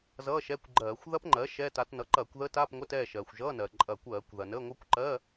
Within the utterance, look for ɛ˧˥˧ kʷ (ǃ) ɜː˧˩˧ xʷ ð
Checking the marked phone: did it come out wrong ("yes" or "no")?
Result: yes